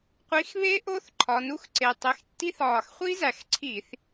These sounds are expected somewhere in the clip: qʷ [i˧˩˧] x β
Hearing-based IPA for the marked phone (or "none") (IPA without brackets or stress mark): i˨˦